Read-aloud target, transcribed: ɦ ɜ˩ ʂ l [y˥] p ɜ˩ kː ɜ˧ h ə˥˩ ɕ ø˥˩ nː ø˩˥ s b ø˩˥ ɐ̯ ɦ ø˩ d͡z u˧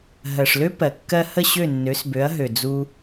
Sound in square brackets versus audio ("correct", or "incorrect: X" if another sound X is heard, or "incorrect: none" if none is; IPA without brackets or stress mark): incorrect: ø˥